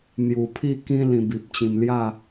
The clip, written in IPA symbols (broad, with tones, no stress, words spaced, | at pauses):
n̪ju˨˩pʰi˥˧kĩ˦ lĩ˧bi˨p̚t͡ɕĩ˧m lja˥˧